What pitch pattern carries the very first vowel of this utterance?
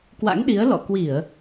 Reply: rising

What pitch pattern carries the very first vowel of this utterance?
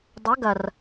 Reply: rising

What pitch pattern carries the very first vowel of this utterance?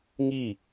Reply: falling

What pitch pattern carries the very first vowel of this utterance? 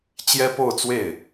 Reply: high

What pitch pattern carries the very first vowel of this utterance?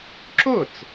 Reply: falling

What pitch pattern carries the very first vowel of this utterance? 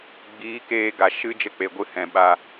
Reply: rising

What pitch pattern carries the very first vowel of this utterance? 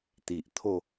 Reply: low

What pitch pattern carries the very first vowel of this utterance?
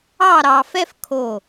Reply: falling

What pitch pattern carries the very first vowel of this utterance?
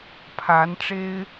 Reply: rising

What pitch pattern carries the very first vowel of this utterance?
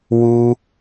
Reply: high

